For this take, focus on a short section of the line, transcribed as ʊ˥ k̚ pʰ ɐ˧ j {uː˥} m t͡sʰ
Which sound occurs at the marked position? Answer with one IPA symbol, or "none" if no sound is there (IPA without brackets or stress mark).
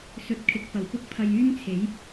yː˥